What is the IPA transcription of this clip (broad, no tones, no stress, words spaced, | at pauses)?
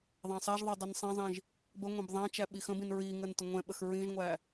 ðˤæ̃sˤaʒðˤɛ dˤinsˤɛ̃zˤĩʒ | bəŋʷɛ̃b ðˤæ̃t͡ʃæ ɓixə̃bĩn ɹiŋən təŋʷɛ̃ɓəx ɹĩʒŋʷæ